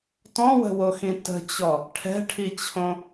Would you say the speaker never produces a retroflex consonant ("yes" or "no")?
no